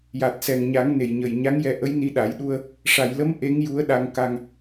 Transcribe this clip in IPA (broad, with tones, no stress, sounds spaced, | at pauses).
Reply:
j a˨˩ t̚ s ɛ˨˩ ŋ ɲ a˨˩˦ ŋ n e˨˩ j ɲ ə˨˩ j ɲ a˧˥ ŋ j ɛ˧ ʔ ə˧˥ j n i˧ ɗ a˨˩˦ j ɗ u˧ ə̯ | ʂ a˨˩˨ j l ə˧˥ m ʔ e˧˥ ŋ j u˧˥ ə̯ ɗ a˧ ŋ k a˧ ŋ